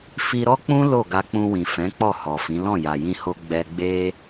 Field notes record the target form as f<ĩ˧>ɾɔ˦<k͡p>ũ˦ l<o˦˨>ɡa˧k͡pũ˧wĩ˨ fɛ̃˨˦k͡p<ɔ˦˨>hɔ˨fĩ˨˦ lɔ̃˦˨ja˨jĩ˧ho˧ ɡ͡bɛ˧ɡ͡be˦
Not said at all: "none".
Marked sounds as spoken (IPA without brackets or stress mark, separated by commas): i˧, k͡p, o˦˨, ɔ˦˨